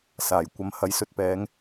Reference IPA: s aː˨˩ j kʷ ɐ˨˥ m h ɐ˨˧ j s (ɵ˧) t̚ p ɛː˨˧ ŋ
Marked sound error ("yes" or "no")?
no